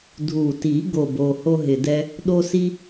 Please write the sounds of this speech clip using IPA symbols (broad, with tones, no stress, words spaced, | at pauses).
dʱu˨˩ti˨˩˦ ɡo˨˩bo˨˩ ho˥ɦɪ˨˩dɛ˥ | ɗo˥si˥